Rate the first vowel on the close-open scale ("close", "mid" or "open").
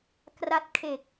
open